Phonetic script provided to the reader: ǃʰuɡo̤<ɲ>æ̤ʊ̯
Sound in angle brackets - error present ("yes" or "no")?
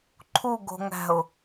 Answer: yes